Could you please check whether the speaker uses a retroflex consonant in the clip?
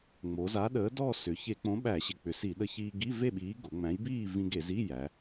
no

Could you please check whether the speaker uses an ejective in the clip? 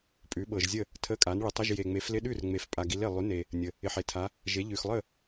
yes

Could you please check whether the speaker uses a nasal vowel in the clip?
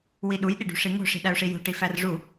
no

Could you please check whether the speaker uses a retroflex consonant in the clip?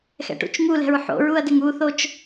yes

